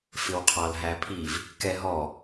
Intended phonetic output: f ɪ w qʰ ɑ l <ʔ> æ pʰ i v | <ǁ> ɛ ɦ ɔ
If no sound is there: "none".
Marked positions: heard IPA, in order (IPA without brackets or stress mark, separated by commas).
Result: ɦ, k